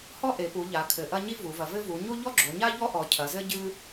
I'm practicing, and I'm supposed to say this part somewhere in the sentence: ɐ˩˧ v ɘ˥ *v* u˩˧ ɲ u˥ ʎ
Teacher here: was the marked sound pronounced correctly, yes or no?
yes